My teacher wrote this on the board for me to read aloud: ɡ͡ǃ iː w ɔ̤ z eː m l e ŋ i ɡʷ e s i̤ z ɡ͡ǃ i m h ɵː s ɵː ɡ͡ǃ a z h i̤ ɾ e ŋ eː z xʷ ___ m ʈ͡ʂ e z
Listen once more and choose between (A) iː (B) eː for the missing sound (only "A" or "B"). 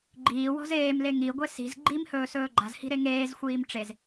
A